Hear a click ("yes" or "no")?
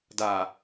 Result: no